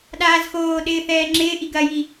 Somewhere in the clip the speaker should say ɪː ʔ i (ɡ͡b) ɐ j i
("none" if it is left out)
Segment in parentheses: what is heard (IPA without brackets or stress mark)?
ɡ